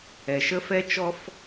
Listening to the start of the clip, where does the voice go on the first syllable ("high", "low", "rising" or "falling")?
low